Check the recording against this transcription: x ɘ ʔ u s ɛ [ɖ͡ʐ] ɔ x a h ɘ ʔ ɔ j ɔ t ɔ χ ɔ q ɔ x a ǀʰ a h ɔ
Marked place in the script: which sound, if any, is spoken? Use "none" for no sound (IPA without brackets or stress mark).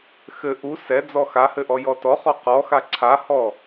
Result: d͡z